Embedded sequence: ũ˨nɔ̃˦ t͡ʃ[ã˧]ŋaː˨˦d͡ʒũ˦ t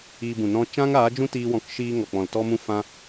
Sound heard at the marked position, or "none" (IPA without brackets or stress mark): ã˦